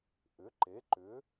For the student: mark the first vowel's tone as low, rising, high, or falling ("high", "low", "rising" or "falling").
rising